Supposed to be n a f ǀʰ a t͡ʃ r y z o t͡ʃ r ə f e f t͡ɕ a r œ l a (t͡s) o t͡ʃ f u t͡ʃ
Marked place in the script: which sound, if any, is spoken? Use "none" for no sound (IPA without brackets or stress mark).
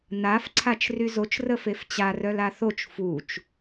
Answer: θ